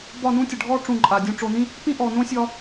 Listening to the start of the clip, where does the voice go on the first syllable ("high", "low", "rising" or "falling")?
falling